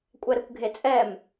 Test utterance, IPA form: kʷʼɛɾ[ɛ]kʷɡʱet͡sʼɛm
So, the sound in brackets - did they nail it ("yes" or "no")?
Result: no